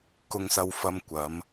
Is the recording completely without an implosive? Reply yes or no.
yes